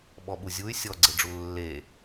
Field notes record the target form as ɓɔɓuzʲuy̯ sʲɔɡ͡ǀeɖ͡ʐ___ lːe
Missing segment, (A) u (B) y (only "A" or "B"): A